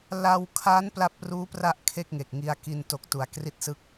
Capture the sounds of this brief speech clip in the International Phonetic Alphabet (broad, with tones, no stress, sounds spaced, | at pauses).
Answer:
l a˧ w kʰ a˦˥ n p l a˦˥ p̚ r uː˦˥ p r a˦˥ ʔ kʰ e˥˩ k̚ ŋ e˨˩ k̚ ŋ i˧ a̯ k i˧ n t o˨˩ k̚ t u˩˦ a̯ k r i˥˩ t̚ s ɯ˥˩ k̚